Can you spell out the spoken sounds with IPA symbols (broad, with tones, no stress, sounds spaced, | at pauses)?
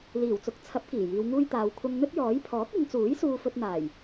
l iː˨˩ w t͡s ʊ˨˥ k̚ t͡sʰ ɐ˨˥ p̚ k iː˨˩ j iː˨˧ w ŋ uː˥ j t̪ aː˨˧ w kʷʰ ɐ˥ ŋ n̪ ɵ˥ t̚ j ɔː˨˥ j pʰ ɔː˨˥ k̚ ɪ˨˧ ŋ t͡s uː˨˥ j s uː˧ f ɵ˧ t̚ n̪ aː˨˩ j